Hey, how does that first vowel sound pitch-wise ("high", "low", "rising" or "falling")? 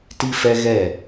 high